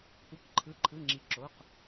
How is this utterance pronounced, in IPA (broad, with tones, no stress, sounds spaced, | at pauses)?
kʷ ɯ˩˧˩ k ǃʰ ɯ˩˧˩ ǃʰ ɯ˩˧˩ ŋ͡ǁ i˩˧ ǁ o˩˧˩ q